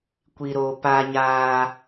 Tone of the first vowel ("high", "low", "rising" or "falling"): low